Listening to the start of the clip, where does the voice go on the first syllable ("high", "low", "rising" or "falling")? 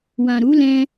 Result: low